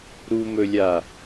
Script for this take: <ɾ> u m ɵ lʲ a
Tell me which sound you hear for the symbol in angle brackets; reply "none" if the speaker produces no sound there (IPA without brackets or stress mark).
ɾ